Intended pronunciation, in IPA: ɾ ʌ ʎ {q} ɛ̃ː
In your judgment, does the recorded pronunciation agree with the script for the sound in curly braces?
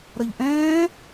no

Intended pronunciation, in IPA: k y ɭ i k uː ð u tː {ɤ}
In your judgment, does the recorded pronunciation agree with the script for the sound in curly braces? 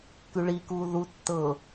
yes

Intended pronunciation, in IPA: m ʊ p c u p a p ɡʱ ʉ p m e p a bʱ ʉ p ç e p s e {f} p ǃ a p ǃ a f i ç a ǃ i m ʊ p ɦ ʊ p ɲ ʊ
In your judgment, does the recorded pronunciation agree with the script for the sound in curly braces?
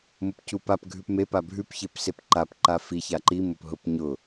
no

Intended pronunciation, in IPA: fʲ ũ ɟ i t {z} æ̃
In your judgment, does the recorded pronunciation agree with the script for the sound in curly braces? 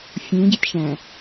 no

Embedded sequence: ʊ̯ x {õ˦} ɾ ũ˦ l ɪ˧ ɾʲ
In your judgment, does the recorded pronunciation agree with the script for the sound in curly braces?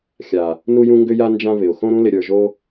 yes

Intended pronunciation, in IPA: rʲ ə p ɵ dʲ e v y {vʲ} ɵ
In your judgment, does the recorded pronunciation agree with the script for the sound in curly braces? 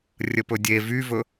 no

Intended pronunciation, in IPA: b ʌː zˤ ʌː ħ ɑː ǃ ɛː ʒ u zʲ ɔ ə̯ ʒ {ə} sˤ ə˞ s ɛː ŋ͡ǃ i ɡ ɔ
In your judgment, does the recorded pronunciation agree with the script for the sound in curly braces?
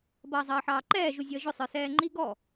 no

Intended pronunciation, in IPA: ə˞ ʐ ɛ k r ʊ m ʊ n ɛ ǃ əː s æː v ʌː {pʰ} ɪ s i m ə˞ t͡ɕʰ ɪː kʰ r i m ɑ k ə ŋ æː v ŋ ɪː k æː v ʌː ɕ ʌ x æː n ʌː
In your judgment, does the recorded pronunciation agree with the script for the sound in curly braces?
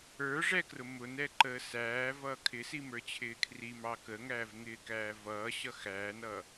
no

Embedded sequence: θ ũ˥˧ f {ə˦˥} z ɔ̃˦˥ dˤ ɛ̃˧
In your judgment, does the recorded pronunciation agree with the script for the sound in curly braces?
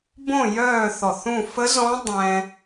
yes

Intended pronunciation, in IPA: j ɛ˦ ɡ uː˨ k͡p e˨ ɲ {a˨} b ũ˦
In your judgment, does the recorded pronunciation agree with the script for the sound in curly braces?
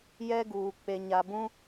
yes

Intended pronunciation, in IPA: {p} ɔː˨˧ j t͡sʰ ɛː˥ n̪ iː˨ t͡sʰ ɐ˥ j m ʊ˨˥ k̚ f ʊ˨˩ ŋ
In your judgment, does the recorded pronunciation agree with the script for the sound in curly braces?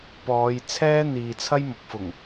yes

